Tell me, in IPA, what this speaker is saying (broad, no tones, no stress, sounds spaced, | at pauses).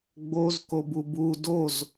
ɡ͡b o z k o b u b u d o z